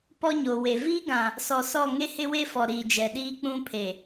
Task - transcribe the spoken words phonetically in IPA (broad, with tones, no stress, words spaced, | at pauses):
pɔ˦ɲoː˨we˨ viː˦ɡã˨ | sɔ˨sɔ˦˨ ŋe˦hɪ˦we˦fɔ˨ ɾiː˨d͡ʒɛ˨ɗiː˦k͡pũ˦ pʰe˨